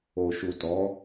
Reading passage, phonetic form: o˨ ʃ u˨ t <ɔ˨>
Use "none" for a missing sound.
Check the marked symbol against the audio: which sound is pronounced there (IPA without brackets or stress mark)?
ɔ˨˦